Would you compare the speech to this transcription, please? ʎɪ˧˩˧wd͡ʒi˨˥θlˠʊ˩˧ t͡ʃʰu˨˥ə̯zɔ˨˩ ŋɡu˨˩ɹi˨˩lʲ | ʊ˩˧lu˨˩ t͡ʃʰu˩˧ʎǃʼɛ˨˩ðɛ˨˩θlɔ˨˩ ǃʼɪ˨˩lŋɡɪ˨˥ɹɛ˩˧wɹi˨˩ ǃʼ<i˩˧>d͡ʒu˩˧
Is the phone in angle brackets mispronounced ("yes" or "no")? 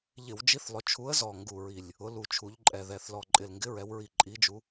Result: no